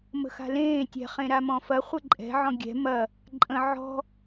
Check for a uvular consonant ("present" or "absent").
present